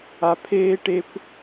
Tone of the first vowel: high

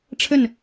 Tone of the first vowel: falling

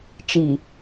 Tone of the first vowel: low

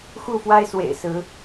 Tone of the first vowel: falling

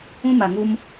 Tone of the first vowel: high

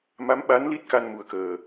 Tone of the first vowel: rising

